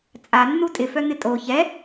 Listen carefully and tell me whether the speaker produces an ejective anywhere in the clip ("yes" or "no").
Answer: yes